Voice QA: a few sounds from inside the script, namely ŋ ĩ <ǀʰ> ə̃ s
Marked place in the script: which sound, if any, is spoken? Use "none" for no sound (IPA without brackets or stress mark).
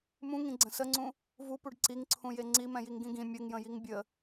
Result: ɡ͡ǀ